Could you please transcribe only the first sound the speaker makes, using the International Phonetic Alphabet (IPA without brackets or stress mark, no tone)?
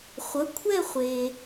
χʷ